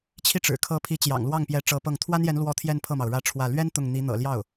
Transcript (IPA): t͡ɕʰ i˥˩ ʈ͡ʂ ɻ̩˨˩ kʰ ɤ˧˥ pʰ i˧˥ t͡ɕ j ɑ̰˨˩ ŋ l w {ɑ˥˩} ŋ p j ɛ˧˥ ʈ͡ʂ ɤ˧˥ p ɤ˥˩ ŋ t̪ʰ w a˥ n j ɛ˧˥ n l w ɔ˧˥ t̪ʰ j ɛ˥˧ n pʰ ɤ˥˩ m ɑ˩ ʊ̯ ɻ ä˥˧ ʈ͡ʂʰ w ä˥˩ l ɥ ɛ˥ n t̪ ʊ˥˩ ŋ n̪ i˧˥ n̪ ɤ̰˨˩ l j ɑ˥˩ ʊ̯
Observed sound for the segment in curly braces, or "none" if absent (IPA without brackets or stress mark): ɑ˥˩